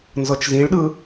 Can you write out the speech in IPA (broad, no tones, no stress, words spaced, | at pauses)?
nzɤt͡ʃzĩɭɗɯ